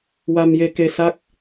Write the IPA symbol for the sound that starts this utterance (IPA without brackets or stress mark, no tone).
w